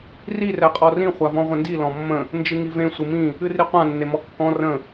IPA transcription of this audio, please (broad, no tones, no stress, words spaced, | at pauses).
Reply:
ri rɛqʼɔrĩ χʷavɔ̃ʁʷə̃ndi lɔ̃mːə̃ | nd͡ʒɨŋivẽ sʷɨmĩ | ɨriqʷã nːemɔkːɔ̃ rə̃